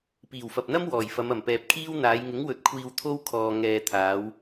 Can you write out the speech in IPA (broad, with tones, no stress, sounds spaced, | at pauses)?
p iː˨˩ w f ɐ˨ p̚ n̪ ɐ˥ m w ɔː˨˩ j f ɐ˨˧ m ɐ˨˩ m p ɛː˨ p̚ kʰ iː˥ w n̪ aː˨˧ j ŋ ɪ˨˥ ŋ w ɵ˨˥ t̚ kʷʰ iː˧ w t̪ʰ o˥ w kʰ ɔː˧ ŋ ɛː˧ t̪ʰ aː˨˧ w